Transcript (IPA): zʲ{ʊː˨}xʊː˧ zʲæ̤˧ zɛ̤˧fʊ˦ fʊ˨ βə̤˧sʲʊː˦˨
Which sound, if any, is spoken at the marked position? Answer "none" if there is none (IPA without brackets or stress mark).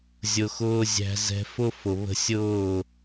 ʊ˨